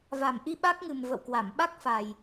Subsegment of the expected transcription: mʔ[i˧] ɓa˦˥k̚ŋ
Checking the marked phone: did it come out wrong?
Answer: no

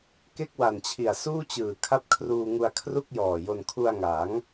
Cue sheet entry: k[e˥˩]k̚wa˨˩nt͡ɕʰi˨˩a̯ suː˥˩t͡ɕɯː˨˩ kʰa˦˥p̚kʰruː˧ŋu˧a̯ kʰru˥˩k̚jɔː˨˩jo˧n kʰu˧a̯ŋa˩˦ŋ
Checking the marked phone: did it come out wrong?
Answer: no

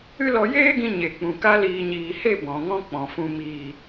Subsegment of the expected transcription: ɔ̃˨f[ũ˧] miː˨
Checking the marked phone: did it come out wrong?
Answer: no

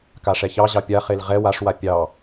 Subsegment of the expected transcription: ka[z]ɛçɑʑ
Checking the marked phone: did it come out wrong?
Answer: yes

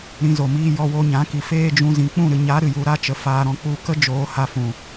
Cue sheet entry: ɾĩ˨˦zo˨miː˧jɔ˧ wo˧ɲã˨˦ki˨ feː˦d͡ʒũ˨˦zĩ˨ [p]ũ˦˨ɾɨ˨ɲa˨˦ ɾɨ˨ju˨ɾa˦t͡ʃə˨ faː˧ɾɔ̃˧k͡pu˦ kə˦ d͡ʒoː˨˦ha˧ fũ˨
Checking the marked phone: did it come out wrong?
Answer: yes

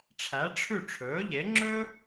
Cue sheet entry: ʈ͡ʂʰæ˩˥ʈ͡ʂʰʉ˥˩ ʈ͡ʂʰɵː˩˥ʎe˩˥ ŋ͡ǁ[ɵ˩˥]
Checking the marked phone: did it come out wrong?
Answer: yes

